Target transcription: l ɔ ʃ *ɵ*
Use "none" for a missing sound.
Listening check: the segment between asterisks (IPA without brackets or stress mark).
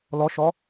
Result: ɔ